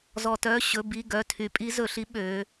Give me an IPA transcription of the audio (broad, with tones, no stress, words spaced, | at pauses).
zɔ˩tœ˩˧˩ ɕɵ˩˧˩bi˩˧˩ ɡœ˩˧˩tʰy˩˧ pʼi˧˥zɵ˧˩˧ɬi˧˥ ɓø˩˧